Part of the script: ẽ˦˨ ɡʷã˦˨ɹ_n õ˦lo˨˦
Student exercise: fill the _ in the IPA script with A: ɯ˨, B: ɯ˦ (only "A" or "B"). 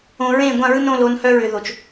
B